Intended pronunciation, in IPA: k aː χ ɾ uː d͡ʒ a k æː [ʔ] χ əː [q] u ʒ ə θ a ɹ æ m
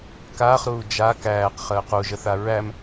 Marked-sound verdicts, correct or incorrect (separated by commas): incorrect, correct